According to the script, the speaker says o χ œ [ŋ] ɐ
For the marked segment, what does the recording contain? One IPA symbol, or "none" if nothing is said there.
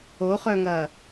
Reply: ŋ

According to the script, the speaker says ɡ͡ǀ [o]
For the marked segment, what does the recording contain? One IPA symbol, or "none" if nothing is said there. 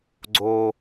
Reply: o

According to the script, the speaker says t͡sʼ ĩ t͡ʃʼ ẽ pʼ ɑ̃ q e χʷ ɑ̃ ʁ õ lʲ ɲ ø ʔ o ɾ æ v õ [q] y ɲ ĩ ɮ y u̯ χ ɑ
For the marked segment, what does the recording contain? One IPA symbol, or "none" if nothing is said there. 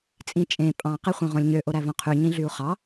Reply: qʰ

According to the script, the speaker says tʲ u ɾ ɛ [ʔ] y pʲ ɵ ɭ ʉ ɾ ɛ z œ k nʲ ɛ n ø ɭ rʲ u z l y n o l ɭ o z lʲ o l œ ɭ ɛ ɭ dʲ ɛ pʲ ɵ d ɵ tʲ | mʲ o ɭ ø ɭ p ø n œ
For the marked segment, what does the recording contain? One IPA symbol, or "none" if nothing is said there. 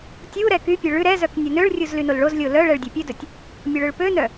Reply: k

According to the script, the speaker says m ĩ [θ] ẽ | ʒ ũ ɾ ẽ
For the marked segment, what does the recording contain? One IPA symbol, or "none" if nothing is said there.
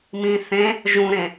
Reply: θ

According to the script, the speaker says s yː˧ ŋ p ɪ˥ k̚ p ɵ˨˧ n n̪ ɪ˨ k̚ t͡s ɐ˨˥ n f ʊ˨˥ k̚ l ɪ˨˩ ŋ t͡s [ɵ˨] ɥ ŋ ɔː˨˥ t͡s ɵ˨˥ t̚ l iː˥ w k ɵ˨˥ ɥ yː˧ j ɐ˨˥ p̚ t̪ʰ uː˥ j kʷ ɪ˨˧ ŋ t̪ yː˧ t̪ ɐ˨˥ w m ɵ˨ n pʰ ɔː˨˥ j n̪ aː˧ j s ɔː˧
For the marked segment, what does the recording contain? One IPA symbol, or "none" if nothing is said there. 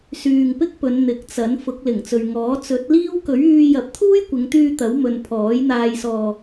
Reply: ɵ˨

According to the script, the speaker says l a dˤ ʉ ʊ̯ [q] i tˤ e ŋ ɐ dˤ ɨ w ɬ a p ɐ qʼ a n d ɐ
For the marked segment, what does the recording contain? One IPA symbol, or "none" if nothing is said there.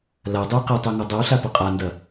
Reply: q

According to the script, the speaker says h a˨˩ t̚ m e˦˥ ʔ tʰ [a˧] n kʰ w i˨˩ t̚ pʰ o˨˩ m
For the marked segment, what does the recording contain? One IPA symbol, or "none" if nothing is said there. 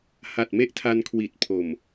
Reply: a˧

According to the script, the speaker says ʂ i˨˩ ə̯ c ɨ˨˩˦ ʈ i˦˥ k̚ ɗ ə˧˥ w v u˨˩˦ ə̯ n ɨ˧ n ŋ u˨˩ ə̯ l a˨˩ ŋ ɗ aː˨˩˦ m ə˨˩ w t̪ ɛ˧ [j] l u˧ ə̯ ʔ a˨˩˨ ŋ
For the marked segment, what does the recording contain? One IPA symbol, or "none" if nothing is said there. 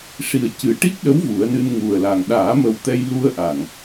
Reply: j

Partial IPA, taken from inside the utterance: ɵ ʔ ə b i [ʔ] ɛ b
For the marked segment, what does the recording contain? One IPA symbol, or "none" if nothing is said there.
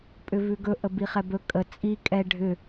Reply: χ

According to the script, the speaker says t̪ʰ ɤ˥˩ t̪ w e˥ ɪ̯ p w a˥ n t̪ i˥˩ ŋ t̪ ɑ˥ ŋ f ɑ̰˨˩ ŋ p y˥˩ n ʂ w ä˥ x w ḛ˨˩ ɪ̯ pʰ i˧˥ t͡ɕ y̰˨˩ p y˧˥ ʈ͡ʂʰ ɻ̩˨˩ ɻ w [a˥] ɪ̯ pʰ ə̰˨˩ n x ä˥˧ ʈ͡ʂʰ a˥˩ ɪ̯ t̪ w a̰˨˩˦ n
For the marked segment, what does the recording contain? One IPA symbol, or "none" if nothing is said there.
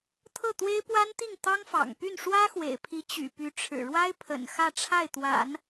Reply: a˥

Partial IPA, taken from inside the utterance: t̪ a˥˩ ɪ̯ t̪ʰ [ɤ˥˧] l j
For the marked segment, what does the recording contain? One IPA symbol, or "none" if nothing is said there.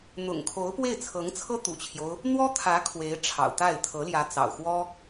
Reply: ɤ˧˥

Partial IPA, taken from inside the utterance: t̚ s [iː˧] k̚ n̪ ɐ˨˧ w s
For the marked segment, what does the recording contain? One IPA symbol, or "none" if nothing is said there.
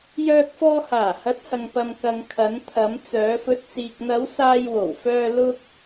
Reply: iː˨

